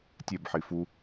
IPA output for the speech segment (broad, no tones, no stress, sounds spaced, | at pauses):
tʲ e b ħ i f u